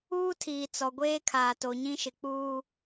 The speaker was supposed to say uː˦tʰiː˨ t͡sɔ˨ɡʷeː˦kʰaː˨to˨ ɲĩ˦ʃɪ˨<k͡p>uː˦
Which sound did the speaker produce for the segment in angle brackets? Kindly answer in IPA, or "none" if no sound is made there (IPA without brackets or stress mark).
k͡p